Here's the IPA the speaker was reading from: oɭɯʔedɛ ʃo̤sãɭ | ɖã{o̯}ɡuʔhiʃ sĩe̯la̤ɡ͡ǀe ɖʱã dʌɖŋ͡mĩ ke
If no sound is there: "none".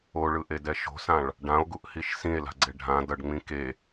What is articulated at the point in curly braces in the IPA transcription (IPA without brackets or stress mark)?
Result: o̯